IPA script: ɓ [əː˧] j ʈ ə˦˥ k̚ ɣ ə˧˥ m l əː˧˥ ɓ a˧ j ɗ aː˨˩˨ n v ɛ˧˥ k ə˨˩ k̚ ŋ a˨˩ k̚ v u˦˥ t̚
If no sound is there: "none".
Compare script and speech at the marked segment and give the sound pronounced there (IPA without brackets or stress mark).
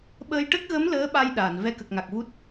əː˧